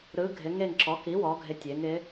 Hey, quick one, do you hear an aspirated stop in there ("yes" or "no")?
no